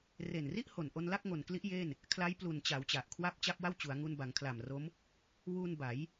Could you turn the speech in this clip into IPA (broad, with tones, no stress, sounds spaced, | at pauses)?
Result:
r e˨˩ n r i˥˩ ʔ h o˨˩ n ʔ o˧ n l a˥˩ k̚ ŋ o˨˩ n k l i˦˥ ʔ j e˥˩ n | kʰ l a˦˥ j p l u˨˩ n t͡ɕ a˩˦ w t͡ɕ a˨˩ ʔ kʰ w a˥˩ p̚ t͡ɕ a˥˩ p̚ w a˥˩ w t͡ɕ u˩˦ a̯ ŋ u˧ n b a˩˦ ŋ kʰ l a˨˩ m r o˦˥ m | w u˧ n b a˩˦ j